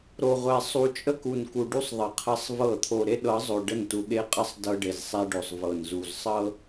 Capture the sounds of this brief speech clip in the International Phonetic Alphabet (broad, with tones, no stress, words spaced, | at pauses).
ɾo˨ʁʷɛ˨ sˤu˨t͡ʃʼə˦ku˨nku˨ ɖu˦sˤ ðˤə˨qʰə˦sˤvɤ˦˨ t̪ʰo˨ɾe˦ɗɤ˨˦zˤo˨ ɖə˦˨ntu˨ɠe˦qʼə˦sˤ dɤ˦ɖe˨zsˤɛ˦ɖo˨sˤ vɤ˨nzu˨zsˤɤ˦